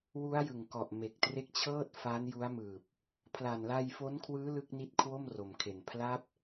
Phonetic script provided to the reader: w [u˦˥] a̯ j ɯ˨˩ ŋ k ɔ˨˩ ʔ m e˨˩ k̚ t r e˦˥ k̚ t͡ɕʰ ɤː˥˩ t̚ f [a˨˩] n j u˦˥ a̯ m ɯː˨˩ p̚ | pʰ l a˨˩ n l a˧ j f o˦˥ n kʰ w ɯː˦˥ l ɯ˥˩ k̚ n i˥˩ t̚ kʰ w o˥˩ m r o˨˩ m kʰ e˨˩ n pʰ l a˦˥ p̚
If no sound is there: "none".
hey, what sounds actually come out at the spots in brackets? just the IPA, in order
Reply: u˦˥, a˦˥

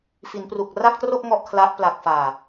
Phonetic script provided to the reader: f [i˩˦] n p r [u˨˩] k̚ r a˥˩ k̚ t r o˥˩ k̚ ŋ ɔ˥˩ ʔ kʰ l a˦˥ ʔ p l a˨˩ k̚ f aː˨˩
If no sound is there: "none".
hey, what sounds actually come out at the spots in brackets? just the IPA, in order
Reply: i˩˦, u˨˩

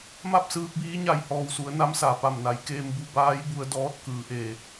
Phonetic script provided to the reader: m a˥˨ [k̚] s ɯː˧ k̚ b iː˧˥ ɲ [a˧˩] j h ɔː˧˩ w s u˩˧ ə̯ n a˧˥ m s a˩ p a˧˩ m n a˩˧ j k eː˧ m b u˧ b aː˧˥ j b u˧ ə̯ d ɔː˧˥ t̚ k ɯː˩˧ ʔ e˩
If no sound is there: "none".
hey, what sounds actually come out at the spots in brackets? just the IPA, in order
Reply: p̚, a˧˩

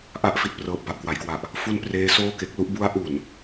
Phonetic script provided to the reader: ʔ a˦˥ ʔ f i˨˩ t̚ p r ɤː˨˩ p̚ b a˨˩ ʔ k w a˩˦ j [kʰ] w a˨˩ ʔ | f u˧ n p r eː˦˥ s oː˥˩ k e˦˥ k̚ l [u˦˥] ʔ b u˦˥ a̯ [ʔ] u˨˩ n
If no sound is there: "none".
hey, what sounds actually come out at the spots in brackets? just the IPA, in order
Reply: k, u˦˥, ʔ

